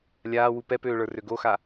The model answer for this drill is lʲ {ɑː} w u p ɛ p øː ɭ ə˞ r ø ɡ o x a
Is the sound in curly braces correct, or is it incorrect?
incorrect